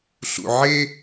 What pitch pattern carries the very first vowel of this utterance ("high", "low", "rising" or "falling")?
low